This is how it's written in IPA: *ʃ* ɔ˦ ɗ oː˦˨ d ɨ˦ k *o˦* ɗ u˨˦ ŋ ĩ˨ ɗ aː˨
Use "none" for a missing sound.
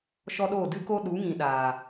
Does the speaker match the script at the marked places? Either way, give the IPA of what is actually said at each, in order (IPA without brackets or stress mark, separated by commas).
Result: ʃ, o˦